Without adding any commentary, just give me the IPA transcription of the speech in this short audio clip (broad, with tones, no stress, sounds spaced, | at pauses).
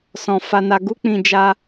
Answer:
s ɔ̃˧ f a˧ n a˧ ɡ u˦ k͡p ĩ˧ d͡ʒ a˦